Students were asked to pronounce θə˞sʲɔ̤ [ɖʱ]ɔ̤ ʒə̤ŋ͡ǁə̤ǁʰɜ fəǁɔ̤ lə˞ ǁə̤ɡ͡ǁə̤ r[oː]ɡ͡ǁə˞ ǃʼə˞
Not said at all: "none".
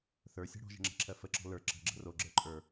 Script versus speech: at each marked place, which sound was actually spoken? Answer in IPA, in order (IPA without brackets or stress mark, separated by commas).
ɽ, o